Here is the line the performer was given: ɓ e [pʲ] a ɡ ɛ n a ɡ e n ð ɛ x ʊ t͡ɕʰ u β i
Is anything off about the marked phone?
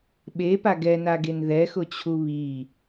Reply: yes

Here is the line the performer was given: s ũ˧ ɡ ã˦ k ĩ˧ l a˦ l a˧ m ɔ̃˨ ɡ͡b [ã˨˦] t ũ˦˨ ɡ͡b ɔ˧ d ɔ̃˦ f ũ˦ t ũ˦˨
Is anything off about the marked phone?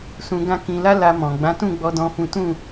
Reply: no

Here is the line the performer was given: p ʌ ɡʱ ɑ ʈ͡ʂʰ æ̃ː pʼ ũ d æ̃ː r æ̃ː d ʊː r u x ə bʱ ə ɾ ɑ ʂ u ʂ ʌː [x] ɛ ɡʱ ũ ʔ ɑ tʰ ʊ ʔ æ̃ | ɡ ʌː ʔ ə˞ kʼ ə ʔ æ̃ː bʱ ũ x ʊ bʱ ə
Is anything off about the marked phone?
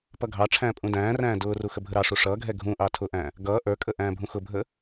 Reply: yes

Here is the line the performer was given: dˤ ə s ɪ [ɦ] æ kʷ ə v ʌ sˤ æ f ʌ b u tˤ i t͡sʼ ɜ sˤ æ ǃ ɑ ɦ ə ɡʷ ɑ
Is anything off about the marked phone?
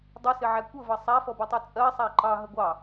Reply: yes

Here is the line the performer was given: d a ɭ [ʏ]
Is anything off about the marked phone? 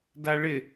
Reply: yes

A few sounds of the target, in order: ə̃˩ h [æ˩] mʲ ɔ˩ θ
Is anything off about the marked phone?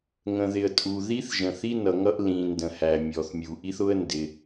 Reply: no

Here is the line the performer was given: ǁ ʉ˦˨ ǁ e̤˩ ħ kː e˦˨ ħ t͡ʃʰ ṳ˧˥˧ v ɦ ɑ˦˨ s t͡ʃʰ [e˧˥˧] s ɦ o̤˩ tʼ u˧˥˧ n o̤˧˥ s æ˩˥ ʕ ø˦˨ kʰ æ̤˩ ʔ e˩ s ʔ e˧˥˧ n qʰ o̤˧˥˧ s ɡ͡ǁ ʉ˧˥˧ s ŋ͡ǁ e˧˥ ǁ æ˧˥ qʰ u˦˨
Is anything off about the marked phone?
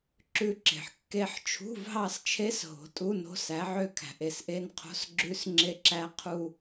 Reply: yes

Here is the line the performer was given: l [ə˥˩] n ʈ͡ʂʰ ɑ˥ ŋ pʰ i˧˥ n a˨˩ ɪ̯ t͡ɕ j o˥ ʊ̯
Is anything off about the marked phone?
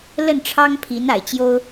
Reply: no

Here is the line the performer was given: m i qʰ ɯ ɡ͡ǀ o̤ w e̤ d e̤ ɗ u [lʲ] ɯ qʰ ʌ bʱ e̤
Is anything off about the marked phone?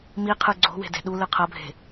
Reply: yes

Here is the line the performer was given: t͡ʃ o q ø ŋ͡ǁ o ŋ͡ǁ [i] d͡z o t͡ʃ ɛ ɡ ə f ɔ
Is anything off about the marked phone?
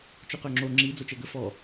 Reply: no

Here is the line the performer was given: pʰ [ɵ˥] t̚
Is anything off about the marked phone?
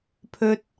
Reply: no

